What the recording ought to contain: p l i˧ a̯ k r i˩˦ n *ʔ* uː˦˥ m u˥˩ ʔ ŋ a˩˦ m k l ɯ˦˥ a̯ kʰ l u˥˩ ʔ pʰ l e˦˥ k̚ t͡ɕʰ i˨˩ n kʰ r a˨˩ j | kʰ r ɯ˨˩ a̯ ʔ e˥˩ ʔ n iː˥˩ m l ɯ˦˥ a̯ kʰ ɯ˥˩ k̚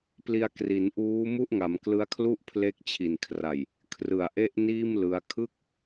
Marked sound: correct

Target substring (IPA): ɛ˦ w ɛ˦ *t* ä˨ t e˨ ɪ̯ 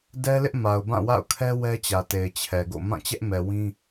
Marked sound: incorrect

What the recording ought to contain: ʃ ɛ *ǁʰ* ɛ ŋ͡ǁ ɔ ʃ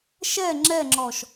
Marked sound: incorrect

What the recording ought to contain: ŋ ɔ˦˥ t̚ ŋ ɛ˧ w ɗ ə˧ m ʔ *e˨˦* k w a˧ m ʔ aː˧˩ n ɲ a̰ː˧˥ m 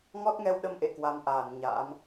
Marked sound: incorrect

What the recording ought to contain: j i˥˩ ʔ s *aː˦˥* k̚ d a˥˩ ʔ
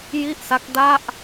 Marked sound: incorrect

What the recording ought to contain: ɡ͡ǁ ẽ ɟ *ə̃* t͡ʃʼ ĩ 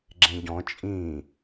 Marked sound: incorrect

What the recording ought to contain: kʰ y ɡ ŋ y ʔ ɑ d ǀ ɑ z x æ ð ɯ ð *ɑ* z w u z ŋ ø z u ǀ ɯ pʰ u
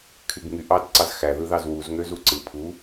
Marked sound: correct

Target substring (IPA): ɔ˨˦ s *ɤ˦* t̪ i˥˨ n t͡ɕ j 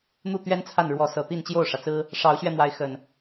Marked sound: incorrect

